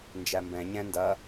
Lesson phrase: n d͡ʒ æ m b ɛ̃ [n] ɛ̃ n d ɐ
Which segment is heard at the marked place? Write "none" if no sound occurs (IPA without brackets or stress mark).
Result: ɲ